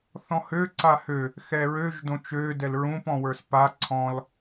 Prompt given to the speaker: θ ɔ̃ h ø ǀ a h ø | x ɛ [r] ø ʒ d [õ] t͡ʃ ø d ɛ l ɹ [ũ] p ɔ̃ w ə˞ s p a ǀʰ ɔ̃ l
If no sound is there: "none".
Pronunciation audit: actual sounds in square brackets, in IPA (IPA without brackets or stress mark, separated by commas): ɹ, õ, ũ